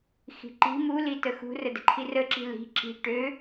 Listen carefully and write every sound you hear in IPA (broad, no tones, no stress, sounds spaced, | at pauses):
x i̤ ǃ i̤ m u l i t ə x ṳ r ə d ə̤ ǃʰ i r ə ǁ i̤ l i̤ ǁ i̤ ʈ ø